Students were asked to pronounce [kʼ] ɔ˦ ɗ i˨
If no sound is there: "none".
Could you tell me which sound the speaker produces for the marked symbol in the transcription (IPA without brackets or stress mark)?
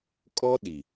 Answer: kʼ